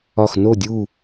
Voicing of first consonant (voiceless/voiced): voiceless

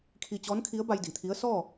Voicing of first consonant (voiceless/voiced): voiceless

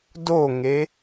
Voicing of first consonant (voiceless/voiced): voiced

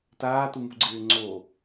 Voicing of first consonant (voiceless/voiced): voiceless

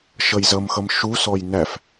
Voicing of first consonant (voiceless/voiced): voiceless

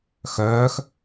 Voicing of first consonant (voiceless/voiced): voiceless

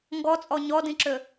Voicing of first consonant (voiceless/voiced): voiced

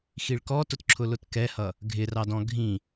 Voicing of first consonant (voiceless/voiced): voiceless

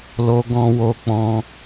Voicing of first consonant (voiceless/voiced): voiced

